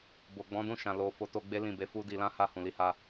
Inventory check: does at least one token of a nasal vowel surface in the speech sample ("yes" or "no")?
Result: yes